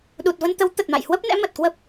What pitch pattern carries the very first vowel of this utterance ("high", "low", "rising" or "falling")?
low